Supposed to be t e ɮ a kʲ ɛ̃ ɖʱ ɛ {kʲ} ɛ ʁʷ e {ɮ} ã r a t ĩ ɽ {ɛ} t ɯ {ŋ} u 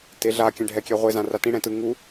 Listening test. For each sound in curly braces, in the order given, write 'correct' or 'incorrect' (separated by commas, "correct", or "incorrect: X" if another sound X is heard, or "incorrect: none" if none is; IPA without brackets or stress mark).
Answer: correct, incorrect: z, incorrect: ɛ̃, correct